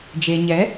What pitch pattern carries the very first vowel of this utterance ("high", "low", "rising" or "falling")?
low